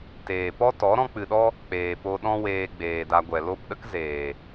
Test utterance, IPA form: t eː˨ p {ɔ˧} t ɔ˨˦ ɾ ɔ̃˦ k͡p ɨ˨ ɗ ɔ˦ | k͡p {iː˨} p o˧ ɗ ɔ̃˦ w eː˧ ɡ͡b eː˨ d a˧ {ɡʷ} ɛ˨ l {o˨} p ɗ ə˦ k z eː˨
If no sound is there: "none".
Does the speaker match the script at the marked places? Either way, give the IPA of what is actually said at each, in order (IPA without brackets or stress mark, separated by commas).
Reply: ɔ˦, eː˨, ɡʷ, o˦˨